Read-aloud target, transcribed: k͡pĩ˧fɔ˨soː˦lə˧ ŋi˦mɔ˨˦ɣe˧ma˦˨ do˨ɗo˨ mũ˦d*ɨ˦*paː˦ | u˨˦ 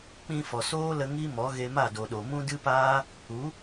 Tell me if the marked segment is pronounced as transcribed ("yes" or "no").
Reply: yes